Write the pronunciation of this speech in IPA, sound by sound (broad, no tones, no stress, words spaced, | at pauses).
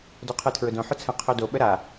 doqʰɯtʰɹʊdõ ħʊt͡sʰə̃ qʰodo ɓəɾa